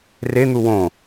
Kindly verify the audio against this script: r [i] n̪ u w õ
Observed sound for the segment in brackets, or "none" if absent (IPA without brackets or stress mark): e